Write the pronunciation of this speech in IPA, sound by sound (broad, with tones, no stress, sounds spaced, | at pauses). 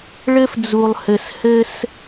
ɭ ɘ˦ f d͡z u˨ lˠ h ɘ˨ s h ɘ˦ s